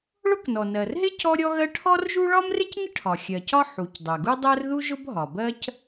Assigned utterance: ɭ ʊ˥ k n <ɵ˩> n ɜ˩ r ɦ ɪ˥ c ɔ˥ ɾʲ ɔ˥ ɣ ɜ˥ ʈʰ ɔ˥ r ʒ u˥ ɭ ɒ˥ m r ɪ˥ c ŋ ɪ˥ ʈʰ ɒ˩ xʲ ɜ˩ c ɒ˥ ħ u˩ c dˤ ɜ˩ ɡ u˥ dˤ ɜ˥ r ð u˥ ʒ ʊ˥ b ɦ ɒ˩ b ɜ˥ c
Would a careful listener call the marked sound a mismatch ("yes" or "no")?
yes